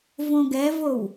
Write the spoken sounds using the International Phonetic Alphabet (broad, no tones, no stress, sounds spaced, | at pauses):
v õ ɡ ɛ v o w